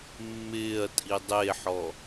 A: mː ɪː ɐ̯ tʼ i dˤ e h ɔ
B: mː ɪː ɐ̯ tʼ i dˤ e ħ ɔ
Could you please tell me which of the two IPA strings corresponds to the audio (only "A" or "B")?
B